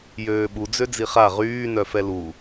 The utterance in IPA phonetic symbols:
j øː ɓ u d͡z ø d͡z i χ a ʁ yː n œ f ɛ l u

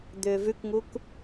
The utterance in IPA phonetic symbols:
d̪ ʏː v ʉ k ŋ u k

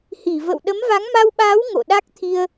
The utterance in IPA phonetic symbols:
h i˧˩ v ə̰˧˨ w ɗ ə˨˦ m v a˨˦ ŋ m a˧ w ɓ aː˨˦ w ŋ o̰˧˨ ɗ a˦˥ k̚ t̪ʰ i˧ ə̯

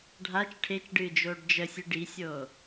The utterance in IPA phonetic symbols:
ɖʱ a t͡ʃ ʈʰ e t͡ʃ ɖ ɨː d͡ʒ oː ɖ d͡ʒ ə sʲ ɨ ɖ i sʲ oː

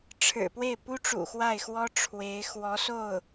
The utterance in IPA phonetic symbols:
ʈ͡ʂʰ ɻ̩˨˩ p w e˥˩ ɪ̯ p u˥ ʈ͡ʂ ṵ˨˩ x w a˥˩ ɪ̯ x w ɔ˥ ʈ͡ʂʰ w e˧˥ ɪ̯ x w ɔ˧˥ s o˥˩ ʊ̯

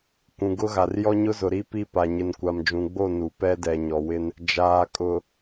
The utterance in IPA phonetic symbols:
kʷ ũ˨ ɡ ʊ˦ ɣ a˨ r j ɔ˦ ɲ ʊ˦ z ʊ˨ ɾ i˦ p i˦ p a˨ ɲ ɪ˨ n kʷ a˨ m d͡ʒ ũ˨ ɡ͡b o˦˨ n u˨ p ɛ˦ d ɛ˨ ɲ ɔ˨ w ɪ˦ n | d͡ʒ aː˨ kʼ ʊ˨

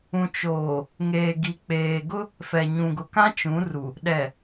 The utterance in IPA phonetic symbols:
ũ˨ t͡ʃ oː˨ | ŋ eː˨ ɡ i˨ k͡p eː˨ ɡ ʊ˦ | f ɛ˨ ɲ ũ˨ ɡ ʊ˨ k ã˦ t͡ʃ ũ˨˦ r u˨ | ɗ ɛ˨

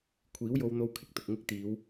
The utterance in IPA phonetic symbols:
kʷʰ iː˨˥ w j o˧ w n̪ o˧ w kʰ ɪ˨ k̚ t̪ ʊ˨ k̚ ŋ ɪ˥ k̚ t̪ iː˨˧ w

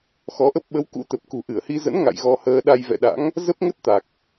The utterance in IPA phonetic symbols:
x ɔ˨˦ ʔ ə˦˥ p̚ ɓ ə˨˦ w k ṵ˧˥ t̪ ə˨˩ p̚ k ṳ˨˩ ʔ ɨ˧˩ ə̯ h i˧ z ə̰˧˥ n ŋ a̰˧˨ j ɣ ɔ˧ h əː˧ ɗ a˧ j v ɛ̰˧˨ ɗ a̰˧˥ ŋ | z ə˦˥ p̚ ŋ ə˦˥ t̚ t̪ a˨˩ k̚

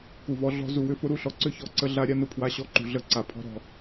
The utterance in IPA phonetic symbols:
k u˨ v ɔ˧ ɮ ɔ̤˧ z u˨ w ʏ˧ f ʊ˦ ɾ u˦ ɬ ɔ˨ ǀ ʏ˦ ç ɔ˨ ǀ ə˧ ɮ a˧ ɾʲ a˦ n ʊ˧ pʰ w a˧ ɕ ɔ˧ ǃ ṳ˨ ɮ ə˧ ǀ a˨ pʰ ɔ̤˧ ɾ ɔ̤˨

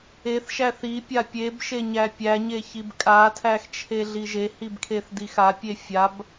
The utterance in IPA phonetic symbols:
e θ ʃ æ θ i pʲ a pʲ e b ʃ e ɲ æ pʲ æ ɲ e ç i b kʼ a tʰ æ x t͡ʃʰ e ɮ i ʒ e h i b kʰ e θ d i x a pʲ e fʲ a b

